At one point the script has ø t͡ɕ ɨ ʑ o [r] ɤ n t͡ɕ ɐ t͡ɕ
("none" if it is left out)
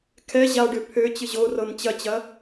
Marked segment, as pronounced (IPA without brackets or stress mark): r